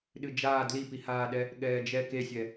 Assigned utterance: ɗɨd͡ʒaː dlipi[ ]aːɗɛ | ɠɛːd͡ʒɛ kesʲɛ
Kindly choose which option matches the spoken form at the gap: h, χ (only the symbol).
h